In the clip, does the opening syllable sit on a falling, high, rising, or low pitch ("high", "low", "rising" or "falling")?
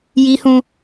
high